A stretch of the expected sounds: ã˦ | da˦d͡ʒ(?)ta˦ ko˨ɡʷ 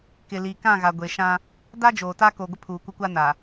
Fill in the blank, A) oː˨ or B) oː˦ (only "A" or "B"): A